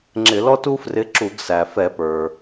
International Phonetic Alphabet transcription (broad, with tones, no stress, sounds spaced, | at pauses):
ŋ͡ǁ ɪ˧˩˧ l ɔ˥ t u˥ f r ɪ˧˥ ǁ u˧˩˧ ɡ s æ˩ f ɛ˧˩˧ p ə˞˩